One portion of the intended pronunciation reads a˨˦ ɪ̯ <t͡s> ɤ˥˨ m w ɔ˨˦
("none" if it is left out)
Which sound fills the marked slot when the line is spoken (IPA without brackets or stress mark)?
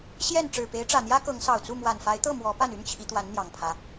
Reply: t̪